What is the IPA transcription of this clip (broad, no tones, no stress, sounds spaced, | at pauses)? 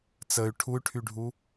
t͡s ə y̯ ʈʰ u y̯ ʈʰ y ɖʱ u